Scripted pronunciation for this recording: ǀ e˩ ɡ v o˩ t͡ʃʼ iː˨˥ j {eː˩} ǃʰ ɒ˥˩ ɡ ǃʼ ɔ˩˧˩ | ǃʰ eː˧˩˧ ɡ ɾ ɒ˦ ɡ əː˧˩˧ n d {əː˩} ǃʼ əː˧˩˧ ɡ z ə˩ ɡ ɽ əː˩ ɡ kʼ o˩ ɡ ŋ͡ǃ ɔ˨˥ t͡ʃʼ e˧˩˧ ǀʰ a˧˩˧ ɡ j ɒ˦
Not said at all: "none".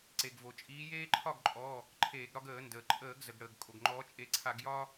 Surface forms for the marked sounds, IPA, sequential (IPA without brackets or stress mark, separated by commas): eː˦, əː˩